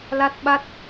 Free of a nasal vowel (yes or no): yes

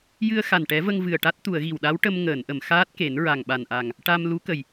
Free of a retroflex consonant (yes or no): no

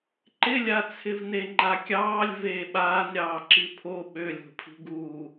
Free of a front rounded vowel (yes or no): no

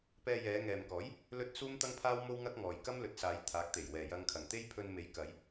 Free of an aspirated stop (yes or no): no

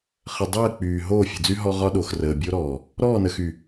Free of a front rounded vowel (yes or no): no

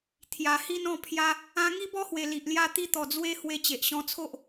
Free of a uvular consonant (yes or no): yes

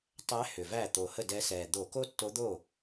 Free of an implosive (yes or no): yes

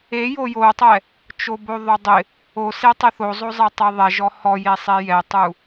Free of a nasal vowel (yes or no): yes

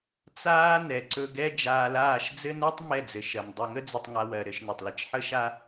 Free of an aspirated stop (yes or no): yes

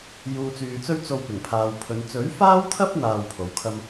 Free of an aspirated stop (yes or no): no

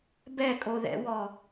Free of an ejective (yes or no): no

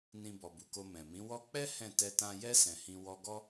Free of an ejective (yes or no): yes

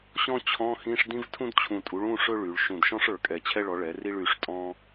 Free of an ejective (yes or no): no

